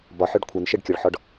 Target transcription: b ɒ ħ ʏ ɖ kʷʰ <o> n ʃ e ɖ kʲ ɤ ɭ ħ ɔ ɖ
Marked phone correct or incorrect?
incorrect